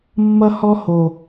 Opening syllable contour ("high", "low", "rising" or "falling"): high